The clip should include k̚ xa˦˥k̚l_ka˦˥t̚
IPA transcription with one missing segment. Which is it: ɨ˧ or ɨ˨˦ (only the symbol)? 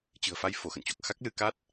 ɨ˧